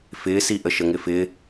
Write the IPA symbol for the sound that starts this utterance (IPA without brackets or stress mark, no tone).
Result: f